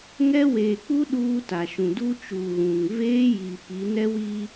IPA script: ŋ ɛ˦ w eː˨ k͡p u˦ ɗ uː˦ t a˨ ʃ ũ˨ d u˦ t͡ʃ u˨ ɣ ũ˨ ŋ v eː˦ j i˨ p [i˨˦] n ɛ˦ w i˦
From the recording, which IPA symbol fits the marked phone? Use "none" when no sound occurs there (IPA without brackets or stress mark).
i˨˦